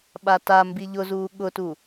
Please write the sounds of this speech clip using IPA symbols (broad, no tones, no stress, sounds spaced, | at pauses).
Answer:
ɓ a t a m b i ʎ ʊ z uː ɠ ʊ t u